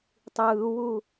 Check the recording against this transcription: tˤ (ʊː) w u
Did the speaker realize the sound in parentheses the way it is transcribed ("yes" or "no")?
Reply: no